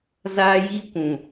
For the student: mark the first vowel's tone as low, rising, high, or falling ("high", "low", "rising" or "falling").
high